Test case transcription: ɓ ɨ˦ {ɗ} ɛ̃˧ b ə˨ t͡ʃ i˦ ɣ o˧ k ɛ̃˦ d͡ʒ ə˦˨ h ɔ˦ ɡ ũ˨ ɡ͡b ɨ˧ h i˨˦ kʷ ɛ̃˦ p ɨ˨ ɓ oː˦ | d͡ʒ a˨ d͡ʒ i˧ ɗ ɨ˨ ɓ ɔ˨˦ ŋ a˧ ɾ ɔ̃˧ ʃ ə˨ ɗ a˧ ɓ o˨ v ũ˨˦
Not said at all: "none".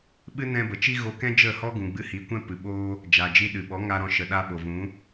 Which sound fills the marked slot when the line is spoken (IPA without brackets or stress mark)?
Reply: n